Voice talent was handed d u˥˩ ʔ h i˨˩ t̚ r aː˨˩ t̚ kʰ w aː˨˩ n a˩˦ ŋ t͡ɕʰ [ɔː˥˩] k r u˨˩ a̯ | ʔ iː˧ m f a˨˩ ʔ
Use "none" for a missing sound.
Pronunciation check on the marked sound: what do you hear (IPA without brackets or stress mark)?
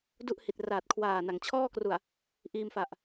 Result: ɔː˥˩